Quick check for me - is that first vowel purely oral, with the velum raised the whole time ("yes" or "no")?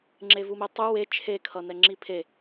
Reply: yes